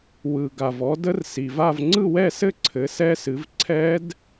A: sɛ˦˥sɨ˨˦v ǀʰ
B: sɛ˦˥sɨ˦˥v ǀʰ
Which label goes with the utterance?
A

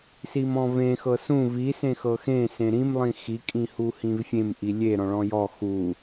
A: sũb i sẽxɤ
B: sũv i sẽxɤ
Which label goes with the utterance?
B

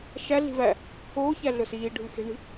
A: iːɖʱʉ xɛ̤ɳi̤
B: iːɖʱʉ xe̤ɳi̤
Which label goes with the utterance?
B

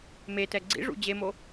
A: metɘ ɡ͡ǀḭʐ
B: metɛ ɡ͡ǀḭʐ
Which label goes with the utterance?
B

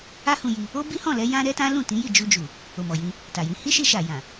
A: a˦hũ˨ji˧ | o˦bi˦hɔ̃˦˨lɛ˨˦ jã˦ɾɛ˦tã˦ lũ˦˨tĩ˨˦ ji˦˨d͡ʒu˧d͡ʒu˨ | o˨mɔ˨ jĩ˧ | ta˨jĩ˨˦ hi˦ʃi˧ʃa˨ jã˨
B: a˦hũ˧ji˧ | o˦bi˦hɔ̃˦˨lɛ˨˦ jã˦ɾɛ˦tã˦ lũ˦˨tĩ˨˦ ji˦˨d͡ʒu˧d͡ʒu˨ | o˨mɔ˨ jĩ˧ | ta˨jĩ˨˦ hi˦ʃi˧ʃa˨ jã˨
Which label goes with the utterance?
B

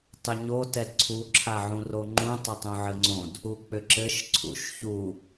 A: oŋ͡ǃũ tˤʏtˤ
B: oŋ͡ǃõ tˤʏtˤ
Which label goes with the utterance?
A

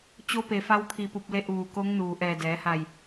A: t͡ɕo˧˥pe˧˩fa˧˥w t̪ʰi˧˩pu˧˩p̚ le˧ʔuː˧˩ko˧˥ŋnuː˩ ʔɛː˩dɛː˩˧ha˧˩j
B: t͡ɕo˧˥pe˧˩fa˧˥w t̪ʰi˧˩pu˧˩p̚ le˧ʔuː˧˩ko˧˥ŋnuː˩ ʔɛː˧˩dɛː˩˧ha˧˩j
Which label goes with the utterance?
B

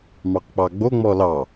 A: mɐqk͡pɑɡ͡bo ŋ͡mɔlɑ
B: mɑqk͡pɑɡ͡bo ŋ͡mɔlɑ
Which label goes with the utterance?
B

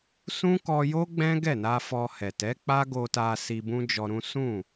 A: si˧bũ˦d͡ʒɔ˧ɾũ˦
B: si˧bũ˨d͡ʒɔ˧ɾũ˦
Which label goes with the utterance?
A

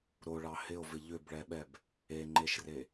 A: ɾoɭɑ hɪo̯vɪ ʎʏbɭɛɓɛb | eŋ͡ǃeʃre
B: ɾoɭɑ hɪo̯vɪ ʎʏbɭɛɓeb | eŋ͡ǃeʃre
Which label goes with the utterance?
A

